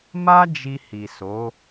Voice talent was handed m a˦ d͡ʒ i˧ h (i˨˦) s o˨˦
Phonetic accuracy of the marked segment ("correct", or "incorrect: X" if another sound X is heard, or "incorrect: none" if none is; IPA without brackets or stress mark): incorrect: i˨